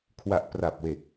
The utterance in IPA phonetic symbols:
kʰ w a˨˩ ʔ p r a˨˩ p̚ w e˨˩ k̚

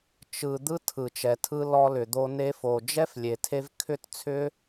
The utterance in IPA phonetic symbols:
t͡ʃ ɯ˨ d̪ ɯ˦ tʰ ɯ˨ t͡ʃ ɛ˨ tʰ ɯ˧ l ɔ˧ l ʏ˨ d̪ o˧ n e˧ f o˨ d͡ʒ ɛ˦ f lʲ e˨ tʰ e˧ v kʰ ʏ˦˨ t t͡sʰ ʏ˦

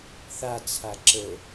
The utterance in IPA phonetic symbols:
θ a t͡sʰ a ǁ ə

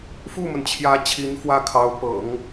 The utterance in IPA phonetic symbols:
f u˥˩ m ə˩ n t͡ɕʰ j ä˧˥ t͡ɕʰ i˧˥ n f w ä˥˩ kʰ ɑ˧˥ ʊ̯ p ɤ̰˨˩˦ ŋ

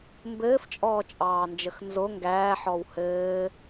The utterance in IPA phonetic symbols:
m b ɘː f t͡ʃʼ ɔː t͡ʃʼ ɑː n d͡ʒ ə x n z o ŋ ɡ æː ħ ɔ w h ɘː

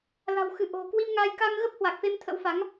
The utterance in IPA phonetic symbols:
l a̤˨˩ w x ɨ˧˩ ʔ o̤˨˩ k w i˧ m ŋ aː˧ j k a˧ ŋ ɣ ə˦˥ p̚ h w a˨˩ k̚ f e˧ m t̪ʰ ə̰˧˥ w f a˨˦ ŋ

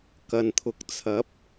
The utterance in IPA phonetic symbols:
k ɐ˨ n t̪ʰ ʊ˨˥ k̚ t͡sʰ ɐ˨˥ p̚

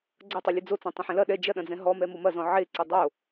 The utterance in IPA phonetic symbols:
ɡ͡ǀ ɐ tˤ ɘ lʲ ɘ d͡z o t͡s ɔ̃ tˤ ɐ̃ ħ ɛ̃ l ɐ ɗ ɛ d͡ʒ ɐ ɗ ɐ̃ d͡z ɛ̃ ɦ ɔ m ɛ m o m ɐ z ɔ̃ ʕ e ǀ ɘ dˤ o

